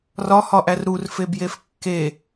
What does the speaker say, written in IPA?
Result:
r ɒ h ɒ ʔ æ r ɾ u r f e b j e f kː e

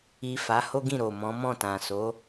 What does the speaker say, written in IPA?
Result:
i˨ f a˨˦ h o˦ ɡ ĩ˦˨ ɾ o˨ m ɔ̃˨˦ m ɔ̃˦˨ t ã˨ s o˨˦

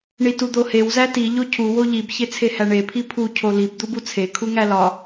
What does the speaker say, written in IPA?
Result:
ɳ i t u d̪ o h e w z æ t i ʎ o cʰ u w o ʎ i b ç e t͡sʰ e h æ ɳ e pʰ i pʰ u cʰ o l i b d̪ u b u t͡sʰ e kʰ u ŋ æ l ɒ

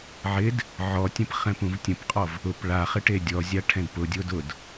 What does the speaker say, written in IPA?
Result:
ʕ ɪ d | ʕ ɔ tʲ ə̃ p χ ɛ̃ p ũ v tʲ ə̃ p qʼ ɔ v | ʊ p ɭ a χ ɪ ʈ e dʲ ɔ zʲ a ʈʰ ɛ̃ d p ʊ dʲ o d ʊ d

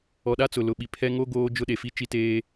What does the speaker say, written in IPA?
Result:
ɔ˨ ɗ a˦ t͡s ʊ˨ l ʊ˨ ɓ i˨ pʰ ɛ˦ ŋ o˦ ɡ oː˦ d͡ʒ ʊ˦ ɗ e˨ f i˦ t͡ʃ i˦ t eː˦

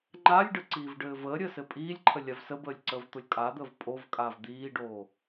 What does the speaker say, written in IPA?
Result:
ŋ͡ǃ a lʲ ɖ ə ǀ iː v ɖ ɘː v əː ɾʲ əː s ɘ pʼ iː lʲ ǃʰ ə lʲ a v s ə b əː lʲ ǀ əː v t̪ o lʲ kʼ a d̪ əː v pʼ o v kʼ aː v d̪ iː ɖ oː

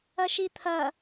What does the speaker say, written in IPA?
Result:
ɐ ʃ i t̪ʰ ɐ

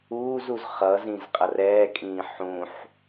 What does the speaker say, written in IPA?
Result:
uː z u z χ ʌ z ĩ z qʼ ʌ r ɛː kʼ ĩː ħ ũ ħ

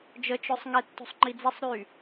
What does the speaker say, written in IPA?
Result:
d͡ʒ ə t͡ʃ œ sˤ ŋ ɛ tː o̤ sˤ ŋ͡ǃ i d͡z ɛ sˤ ɾ y

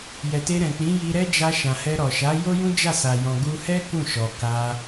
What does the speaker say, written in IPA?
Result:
j ɛ˨ t e˧ ɾ ɛ̃˨ k͡p ĩ˨˦ j i˧ ɾ ɛ˦ d͡ʒ a˧ ʃ ã˨ h ɛ˧ ɾ ɔ˨ ʃ a˨˦ j o˦ j ũ˦ d͡ʒ a˦˨ s a˨ j ɔ̃˨ ɡ u˧ h ɛ˦ k ũ˦˨ ʃ ɔ˨ k a˧

